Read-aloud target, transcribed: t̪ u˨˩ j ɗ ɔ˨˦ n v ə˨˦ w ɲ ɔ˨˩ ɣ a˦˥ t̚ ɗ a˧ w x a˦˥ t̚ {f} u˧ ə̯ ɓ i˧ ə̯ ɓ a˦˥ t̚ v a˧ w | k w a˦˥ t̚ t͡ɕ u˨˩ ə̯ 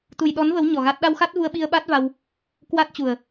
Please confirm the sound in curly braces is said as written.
no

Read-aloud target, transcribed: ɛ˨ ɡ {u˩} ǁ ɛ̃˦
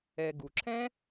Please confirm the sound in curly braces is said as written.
yes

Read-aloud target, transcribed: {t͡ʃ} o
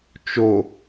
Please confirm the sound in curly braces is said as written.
yes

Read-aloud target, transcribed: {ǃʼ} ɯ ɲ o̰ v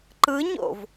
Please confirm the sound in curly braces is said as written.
no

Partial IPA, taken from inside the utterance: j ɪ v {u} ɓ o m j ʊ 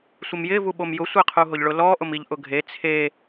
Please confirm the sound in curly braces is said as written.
yes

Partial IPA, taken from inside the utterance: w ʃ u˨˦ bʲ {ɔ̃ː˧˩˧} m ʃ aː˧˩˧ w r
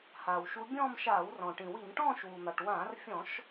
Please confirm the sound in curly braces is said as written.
no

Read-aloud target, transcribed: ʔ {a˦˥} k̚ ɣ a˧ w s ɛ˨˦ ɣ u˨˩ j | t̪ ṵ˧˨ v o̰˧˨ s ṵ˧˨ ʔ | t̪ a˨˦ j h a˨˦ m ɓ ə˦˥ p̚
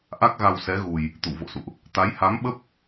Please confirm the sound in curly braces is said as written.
yes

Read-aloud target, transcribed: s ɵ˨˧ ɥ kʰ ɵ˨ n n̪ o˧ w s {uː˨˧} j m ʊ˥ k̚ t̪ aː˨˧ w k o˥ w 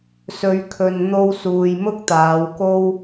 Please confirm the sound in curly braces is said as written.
no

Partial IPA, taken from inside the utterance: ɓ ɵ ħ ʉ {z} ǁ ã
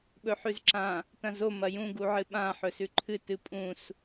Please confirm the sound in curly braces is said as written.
yes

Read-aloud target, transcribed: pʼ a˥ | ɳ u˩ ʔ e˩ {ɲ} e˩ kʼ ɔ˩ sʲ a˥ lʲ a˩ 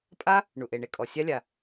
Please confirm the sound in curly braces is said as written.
no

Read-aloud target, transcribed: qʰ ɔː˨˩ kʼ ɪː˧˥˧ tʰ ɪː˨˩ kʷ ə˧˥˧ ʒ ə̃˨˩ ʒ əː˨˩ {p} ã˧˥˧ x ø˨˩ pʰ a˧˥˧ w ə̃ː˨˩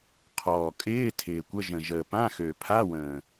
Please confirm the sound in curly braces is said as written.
yes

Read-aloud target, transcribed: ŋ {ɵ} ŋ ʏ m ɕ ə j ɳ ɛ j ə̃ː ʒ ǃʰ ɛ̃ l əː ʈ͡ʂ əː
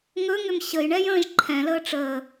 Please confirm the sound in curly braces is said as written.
yes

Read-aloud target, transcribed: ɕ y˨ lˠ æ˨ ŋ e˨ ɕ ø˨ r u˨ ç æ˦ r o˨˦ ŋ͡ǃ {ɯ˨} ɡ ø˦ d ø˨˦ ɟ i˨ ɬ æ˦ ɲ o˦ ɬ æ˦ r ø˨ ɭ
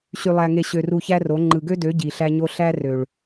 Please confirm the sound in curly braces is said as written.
yes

